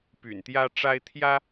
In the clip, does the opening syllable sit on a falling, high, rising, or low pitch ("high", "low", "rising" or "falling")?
low